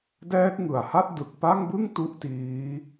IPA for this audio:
dɛː˦˥k̚ŋɯ˨˩a̯ha˥˩t̚ dɯ˨˩k̚pa˥˩ŋbɯ˥˩ŋ tu˥˩ʔtiː˦˥

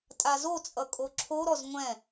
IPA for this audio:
tʼazot͡sʼʌ kʼoǁʰoɾɔz ŋʷɛ̃

